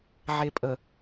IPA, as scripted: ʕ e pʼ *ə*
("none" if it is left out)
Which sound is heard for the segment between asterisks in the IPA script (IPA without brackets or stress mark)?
ə